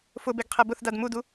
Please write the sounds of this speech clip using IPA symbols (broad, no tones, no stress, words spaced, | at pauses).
fʊbeɡqʰe bʊθdad mudu